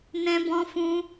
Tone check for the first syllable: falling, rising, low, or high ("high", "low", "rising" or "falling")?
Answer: high